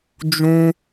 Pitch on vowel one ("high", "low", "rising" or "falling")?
high